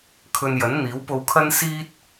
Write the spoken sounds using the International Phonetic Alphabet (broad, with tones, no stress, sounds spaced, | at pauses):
kʰ ɵ˧ n j ɐ˨˥ n n̪ iː˨˥ w p o˧ w kʰ ɐ˥ n s iː˥ t̚